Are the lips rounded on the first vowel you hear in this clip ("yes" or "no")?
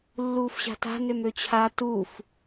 yes